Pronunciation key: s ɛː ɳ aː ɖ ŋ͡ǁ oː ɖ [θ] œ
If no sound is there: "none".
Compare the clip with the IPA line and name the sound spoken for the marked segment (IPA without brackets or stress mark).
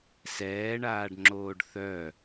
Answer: θ